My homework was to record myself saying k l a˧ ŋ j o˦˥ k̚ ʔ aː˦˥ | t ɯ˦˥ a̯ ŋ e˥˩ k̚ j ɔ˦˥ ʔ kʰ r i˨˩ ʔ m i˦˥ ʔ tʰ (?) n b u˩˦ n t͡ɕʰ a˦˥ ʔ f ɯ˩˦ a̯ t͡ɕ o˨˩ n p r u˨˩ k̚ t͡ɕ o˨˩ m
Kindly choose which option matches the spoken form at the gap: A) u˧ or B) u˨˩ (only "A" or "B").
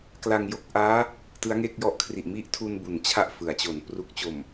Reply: A